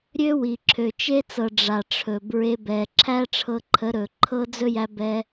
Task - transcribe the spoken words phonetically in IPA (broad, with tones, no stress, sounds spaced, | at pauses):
ɾʲ ø˦ w i˨ ǁʰ ø˨ t͡ʃ e˦ t͡s ɤ˨ ɖ͡ʐ a˨ ʈ͡ʂʰ ɵ˨ b ɹ e˧ b ɛ˨ ǁʰ æ˦ ʈ͡ʂʰ ɤ˧ ǃʰ ə˨˦ ɾ ɵ˨ ǃʰ ɤ˦ d͡z ɵ˦ j æ˧ b ɛ˧